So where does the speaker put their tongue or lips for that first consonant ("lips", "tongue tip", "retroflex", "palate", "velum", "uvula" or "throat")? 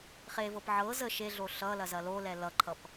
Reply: uvula